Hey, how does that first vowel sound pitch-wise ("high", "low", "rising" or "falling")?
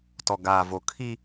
low